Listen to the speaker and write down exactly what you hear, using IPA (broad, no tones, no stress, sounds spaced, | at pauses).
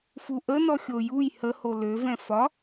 f u ʔ ə n ɔ xʲ o j u j h ə h o l ø v ɛ̃ f ɒ